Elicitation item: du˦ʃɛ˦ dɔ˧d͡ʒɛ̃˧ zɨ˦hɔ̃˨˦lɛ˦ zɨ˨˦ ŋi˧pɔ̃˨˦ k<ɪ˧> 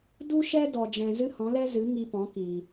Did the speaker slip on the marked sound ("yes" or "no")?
yes